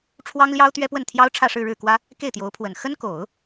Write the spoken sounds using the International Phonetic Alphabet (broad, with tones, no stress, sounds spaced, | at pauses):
ʈ͡ʂʰ w ɑ˥ ŋ l j ɑ˥ ʊ̯ t̪ ɥ ɛ˥ p w ə˥˩ n t̪ʰ j ɑ˥ ʊ̯ ʈ͡ʂʰ ä˥˧ ʂ ɻ̩˥˧ ɻ ɻ̩˥˩ k w ä˥ | k e˥˩ ɪ̯ t̪ j o˧˥ ʊ̯ pʰ w ə˨˩ n x ə˥ n k o˨˩˦ ʊ̯